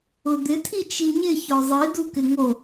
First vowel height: high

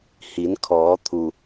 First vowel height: high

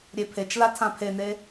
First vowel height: mid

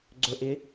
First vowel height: mid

